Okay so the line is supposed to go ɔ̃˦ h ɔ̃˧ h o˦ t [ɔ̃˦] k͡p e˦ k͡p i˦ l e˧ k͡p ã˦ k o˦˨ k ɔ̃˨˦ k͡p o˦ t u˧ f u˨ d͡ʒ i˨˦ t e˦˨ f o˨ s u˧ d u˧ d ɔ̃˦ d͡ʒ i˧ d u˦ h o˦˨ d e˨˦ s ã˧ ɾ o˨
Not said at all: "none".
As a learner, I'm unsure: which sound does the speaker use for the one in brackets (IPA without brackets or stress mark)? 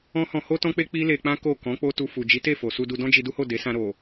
ɔ̃˦